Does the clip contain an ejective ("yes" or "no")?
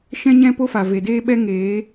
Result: no